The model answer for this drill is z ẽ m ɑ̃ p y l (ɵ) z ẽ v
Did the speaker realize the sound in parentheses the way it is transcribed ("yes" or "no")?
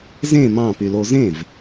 no